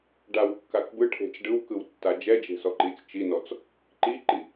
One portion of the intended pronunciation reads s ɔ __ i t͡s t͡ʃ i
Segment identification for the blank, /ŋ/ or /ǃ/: ǃ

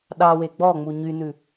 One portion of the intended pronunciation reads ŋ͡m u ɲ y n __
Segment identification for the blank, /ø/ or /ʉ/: ʉ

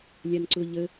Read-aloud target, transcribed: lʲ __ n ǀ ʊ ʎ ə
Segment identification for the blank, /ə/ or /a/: a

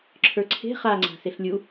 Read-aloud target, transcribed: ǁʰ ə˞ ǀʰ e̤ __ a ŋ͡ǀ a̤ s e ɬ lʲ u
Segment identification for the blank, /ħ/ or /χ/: χ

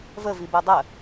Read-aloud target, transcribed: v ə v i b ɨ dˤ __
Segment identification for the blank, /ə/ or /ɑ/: ə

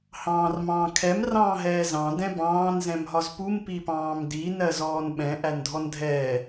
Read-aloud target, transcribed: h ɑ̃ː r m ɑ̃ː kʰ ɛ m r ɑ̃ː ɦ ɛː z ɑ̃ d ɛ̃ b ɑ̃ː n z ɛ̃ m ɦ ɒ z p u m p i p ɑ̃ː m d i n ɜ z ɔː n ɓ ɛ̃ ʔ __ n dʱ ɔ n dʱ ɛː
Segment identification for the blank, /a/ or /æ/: æ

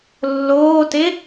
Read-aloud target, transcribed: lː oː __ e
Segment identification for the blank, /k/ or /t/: t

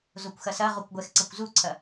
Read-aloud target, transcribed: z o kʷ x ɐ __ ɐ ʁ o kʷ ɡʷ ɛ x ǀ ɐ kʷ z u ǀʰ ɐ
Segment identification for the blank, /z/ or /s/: s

